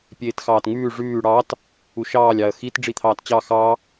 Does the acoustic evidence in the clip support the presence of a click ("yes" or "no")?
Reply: no